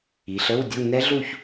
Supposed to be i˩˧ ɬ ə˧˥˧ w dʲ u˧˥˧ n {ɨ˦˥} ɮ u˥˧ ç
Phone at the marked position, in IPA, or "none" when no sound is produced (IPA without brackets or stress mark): ɛ˦˥